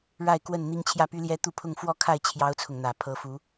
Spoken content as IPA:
ɻ a˥˨ ɪ̯ k w ə˥˨ n n̪ i˦ ŋ t͡ɕʰ j ä˥˨ p y˦ l j ɛ˦ t̪ u˥˨ pʰ ʊ˥˨ ŋ f w ɔ˥˨ kʰ a˥˨ ɪ̯ t͡ɕʰ j ɑ˦ ʊ̯ t͡sʰ ʊ˨ ŋ n̪ ä˨˩ pʰ ɤ˨˦ f u˨˦

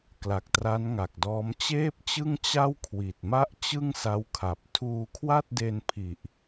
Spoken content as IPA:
k l a˨˩ k̚ t r a˦˥ n ŋ a˨˩ k̚ d ɔː˦˥ m t͡ɕ eː˥˩ p̚ t͡ɕ ɯ˥˩ ŋ t͡ɕ a˥˩ w kʰ w i˨˩ t̚ m a˥˩ ʔ t͡ɕ ɯ˥˩ ŋ s a˦˥ w kʰ a˨˩ p̚ tʰ uː˧ kʰ w a˥˩ t̚ d e˧ n pʰ i˨˩ ʔ

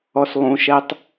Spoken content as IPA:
ɔ s lˠ ũ ʃ ɛ tˤ

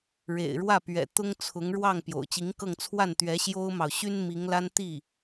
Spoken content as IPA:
ɻ ḛ˨˩ ɪ̯ ɻ w ä˥˩ p ɥ ɛ̰˨˩ t̪ ʊ˥ ŋ t͡sʰ ʊ˧˥ ŋ ɻ w ɑ˥˩ ŋ p j o̰˨˩ ʊ̯ t͡ɕ i˧˥ ŋ k ɤ˥˧ ŋ t͡sʰ w a˥˩ n t̪ ɥ ɛ˧˥ ɕ j o˥ ʊ̯ m ɑ˨ ʊ̯ ɕ y˥ n m i˧˥ ŋ l a˥ n t̪ i˥˩

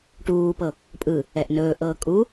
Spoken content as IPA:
ʈ uː p ɤ | pʼ ɯ | ɛ ʔ n ɵː ʔ ɤː kʼ u

